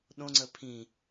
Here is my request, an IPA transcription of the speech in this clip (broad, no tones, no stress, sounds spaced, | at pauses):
ɗ õ ŋ͡ǀ ə pʰ ĩ